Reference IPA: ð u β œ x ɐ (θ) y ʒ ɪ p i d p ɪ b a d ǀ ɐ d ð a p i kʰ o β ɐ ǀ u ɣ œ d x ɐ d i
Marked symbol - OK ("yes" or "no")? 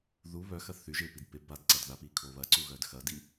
yes